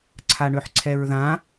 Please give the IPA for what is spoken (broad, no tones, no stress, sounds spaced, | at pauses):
ǀʰ a ɳ ʏ ħ ǀʰ ɛ ɹ ð ã